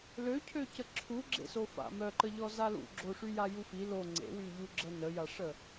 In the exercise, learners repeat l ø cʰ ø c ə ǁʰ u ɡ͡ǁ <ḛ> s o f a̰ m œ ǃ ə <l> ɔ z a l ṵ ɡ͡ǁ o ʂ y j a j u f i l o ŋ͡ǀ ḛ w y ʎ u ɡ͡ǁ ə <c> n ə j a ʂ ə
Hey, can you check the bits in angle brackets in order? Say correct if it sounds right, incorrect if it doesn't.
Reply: correct, incorrect: ʎ, incorrect: none

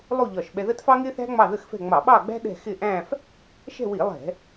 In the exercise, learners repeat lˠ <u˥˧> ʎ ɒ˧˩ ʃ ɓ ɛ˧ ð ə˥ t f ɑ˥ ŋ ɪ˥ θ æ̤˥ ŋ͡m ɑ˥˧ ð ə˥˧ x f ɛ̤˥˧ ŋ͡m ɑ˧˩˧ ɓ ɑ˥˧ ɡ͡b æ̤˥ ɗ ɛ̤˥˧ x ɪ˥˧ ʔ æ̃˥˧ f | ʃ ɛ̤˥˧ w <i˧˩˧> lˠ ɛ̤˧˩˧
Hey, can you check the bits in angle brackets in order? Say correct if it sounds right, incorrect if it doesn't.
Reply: correct, correct

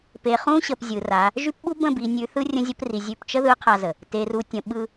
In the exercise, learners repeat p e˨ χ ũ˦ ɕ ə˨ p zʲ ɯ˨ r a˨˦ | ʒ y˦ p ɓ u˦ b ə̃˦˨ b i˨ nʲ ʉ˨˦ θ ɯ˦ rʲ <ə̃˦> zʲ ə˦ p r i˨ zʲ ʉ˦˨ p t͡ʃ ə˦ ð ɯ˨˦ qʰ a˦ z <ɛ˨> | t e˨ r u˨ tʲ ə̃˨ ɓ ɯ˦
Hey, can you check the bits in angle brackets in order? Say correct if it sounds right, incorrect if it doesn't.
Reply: correct, incorrect: ə˨

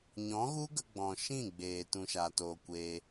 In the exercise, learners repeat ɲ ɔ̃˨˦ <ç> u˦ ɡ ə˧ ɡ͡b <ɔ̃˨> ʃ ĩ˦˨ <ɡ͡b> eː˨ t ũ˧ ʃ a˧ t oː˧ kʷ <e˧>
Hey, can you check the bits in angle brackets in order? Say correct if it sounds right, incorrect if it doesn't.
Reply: incorrect: ɣ, correct, correct, correct

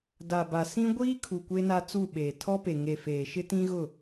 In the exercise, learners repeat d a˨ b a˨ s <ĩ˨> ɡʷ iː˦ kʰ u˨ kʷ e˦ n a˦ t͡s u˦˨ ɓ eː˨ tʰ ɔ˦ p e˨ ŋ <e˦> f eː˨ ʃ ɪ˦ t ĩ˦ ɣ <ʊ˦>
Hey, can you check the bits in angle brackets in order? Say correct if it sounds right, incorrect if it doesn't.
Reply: incorrect: ĩ˦, incorrect: e˨, incorrect: ʊ˦˨

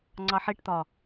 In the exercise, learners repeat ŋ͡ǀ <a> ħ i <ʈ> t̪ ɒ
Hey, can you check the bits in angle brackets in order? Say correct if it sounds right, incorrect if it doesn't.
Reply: incorrect: ɑ, correct

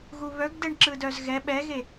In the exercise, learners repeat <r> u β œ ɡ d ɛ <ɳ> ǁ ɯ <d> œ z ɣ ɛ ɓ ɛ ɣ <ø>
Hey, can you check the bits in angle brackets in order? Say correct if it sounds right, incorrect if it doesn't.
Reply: incorrect: ɣ, correct, correct, incorrect: e

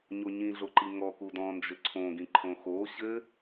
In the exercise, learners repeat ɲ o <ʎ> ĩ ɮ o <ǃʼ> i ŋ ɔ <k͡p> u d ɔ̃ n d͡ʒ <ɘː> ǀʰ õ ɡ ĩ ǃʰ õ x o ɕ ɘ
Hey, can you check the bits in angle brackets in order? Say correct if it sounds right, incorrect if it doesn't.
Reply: incorrect: ɲ, incorrect: ǃ, incorrect: k, incorrect: ɘ

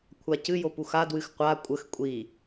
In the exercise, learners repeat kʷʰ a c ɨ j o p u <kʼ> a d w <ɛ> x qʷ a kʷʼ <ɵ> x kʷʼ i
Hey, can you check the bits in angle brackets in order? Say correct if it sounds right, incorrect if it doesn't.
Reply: incorrect: x, incorrect: ɨ, incorrect: ə

